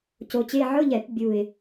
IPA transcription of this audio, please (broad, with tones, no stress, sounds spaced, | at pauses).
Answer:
c o˧ t͡ɕ e˧˥˧ ʕ ʊ˧˥˧ ʎ ɛ˧˩˧ p bʲ u˨˩ ɪ̯